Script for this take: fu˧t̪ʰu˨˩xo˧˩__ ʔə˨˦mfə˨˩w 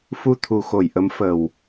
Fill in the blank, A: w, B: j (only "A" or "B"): B